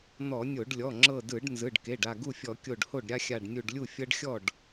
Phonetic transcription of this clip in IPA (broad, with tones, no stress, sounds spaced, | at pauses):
n̪ ɔ˧˩˧ nʲ o˧˩˧ ɖ lʲ ɔ˩˧˩ ŋ͡ǁ ɤ˧˩ d ɯ˧˩˧ ɖ n z ɯ˩˧˩ ɖ k e˩˧˩ ɖ a˧˩ ɡ u˥˩ fʲ ɔ˧˩˧ kʲ o˧˩ ɖ h o˥˩ ɖ ɾʲ a˦ xʲ a˧˩ ɖ nʲ u˧˩ ɖ lʲ u˥˩ fʲ ɤ˦ ɖ xʲ ɔ˥˩ ɖ